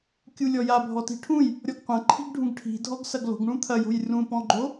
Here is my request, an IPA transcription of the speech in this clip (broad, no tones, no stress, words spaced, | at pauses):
kʲulʲɔja bʱɔti̤ʈʰũj | ɾʲɔɡqʷɐ̃ǃʰi̤ɡɖʱũɡ ʈʰi̤ dʱɔɡsɐɡlo̤ɡɳũ t̪ʰɐjo̤j rũpɔ̃ɡ͡ǃo